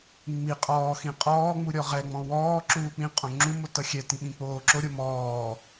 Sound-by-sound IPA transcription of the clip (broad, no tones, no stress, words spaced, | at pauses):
ŋ͡mi qʼɔːxĩ qʼɔːŋ͡mu ɾʲɔʁɛŋ͡mɔ̃ wɔːǁuː k͡pĩ qʼõŋ͡ǁumo tʌxʲɛtĩ ɓĩk͡poːǁoɾʲo mɔː